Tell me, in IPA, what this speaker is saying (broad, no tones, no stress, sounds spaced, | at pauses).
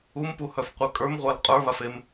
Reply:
u m p u h œ f qʷ ə˞ kʼ ə˞ m ʁʷ a l qʼ ə˞ β a f e m